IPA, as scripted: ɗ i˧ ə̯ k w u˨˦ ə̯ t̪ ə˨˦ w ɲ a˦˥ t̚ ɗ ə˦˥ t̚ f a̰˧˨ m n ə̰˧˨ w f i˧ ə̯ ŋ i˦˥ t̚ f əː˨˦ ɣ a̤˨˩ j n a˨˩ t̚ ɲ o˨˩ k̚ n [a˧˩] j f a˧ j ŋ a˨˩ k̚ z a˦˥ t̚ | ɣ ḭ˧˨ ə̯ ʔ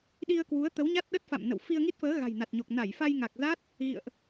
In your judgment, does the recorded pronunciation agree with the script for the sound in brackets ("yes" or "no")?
yes